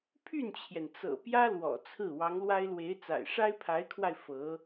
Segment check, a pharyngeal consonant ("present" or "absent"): absent